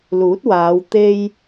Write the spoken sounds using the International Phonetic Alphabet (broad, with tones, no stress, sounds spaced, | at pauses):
l uː˨˥ t̚ w aː˨˧ w t̪ e˧ j